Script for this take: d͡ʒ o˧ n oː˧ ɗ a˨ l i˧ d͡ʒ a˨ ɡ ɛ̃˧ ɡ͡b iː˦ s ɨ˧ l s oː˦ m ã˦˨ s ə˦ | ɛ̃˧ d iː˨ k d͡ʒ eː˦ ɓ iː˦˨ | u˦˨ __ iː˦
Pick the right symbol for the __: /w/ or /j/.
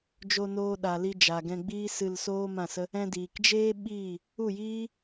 j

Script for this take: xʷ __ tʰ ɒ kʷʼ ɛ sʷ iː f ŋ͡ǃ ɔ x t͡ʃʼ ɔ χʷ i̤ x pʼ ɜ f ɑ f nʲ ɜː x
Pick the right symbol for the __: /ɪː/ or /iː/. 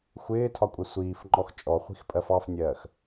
ɪː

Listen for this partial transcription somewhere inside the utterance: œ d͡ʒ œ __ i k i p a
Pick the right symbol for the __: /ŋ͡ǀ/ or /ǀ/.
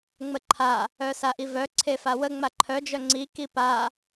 ŋ͡ǀ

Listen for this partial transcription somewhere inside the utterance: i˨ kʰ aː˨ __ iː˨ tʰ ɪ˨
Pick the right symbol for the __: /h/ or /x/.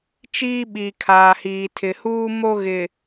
h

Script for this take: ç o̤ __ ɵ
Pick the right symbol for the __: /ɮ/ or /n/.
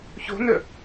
n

